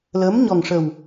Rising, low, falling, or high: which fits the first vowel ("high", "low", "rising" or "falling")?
rising